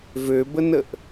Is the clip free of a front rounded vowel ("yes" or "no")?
no